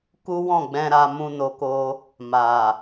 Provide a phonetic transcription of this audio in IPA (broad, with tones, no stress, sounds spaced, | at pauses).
k u˦ w ɔ̃˦˨ ɡ͡b ɛ̃˧ ɾ a˧ m ũ˧ n o˧ k o˧ | m a˨